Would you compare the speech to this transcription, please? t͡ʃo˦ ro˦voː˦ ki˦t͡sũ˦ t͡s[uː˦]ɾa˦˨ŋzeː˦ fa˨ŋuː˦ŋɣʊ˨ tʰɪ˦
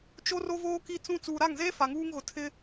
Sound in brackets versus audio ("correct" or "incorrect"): incorrect